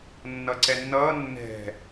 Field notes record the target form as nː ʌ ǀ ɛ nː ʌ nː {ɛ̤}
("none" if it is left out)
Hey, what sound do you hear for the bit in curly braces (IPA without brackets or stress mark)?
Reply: ɛ̤